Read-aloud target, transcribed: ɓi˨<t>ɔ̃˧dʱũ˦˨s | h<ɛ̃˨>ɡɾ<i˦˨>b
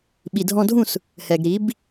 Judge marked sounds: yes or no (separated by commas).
no, no, no